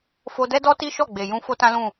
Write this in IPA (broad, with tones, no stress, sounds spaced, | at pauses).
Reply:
f o˧ d ɛ˦ d ɔ˦ t i˦ ʃ ɔ˦˨ ɡ͡b e˨ j ũ˧ f o˦ t ã˦ l ũ˦˨